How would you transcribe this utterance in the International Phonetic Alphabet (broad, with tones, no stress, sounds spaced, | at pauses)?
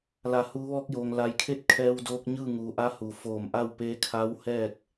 l a˩ h uː˩˧ ʋ ɔː˧ k̚ j oː˩ ŋ l a˩ j kʰ e˥˨ t̚ kʰ ɛː˧ w d oː˧ k̚ ɲ ɯː˥˨ ŋ uː˩˧ ʔ a˧˥ h u˩ f oː˧˩ m ʔ a˥˨ w p eː˧˥ kʰ a˧˥ w h ɛː˥˨ k̚